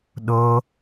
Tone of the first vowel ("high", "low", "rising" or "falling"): high